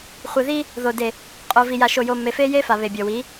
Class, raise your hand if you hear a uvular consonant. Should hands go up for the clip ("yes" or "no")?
yes